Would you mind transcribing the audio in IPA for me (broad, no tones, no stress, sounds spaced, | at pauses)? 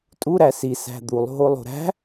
tʼ u ɾ æ s i s æ̤ d̪ u lˠ ɦ o lˠ o̤ ɾ æ̤